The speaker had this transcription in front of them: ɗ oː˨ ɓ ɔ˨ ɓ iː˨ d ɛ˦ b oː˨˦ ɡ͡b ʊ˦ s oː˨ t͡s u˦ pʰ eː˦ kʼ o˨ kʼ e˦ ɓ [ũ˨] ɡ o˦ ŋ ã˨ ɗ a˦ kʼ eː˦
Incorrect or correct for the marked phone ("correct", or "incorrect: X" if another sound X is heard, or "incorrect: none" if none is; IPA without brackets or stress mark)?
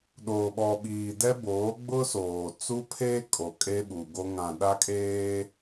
incorrect: u˨